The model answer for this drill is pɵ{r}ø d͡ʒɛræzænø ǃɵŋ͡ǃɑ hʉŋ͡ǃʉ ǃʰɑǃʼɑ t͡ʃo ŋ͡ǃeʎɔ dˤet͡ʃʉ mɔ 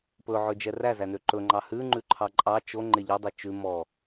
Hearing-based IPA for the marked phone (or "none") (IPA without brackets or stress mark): ʕ